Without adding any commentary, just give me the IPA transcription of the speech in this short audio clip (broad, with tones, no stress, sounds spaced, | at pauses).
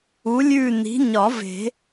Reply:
u˨˥ lʲ ʉ˦˨ n i̤˨˥ ɲ ɒ˨˩˦ v e̤˨˩˦